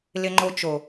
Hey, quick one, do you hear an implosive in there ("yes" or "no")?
no